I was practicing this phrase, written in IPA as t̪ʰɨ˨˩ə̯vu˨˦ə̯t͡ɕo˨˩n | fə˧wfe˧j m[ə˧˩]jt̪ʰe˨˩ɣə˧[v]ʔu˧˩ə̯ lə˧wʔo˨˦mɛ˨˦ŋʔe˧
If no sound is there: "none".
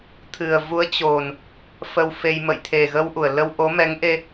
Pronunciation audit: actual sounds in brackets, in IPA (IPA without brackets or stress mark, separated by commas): ə̰˧˨, w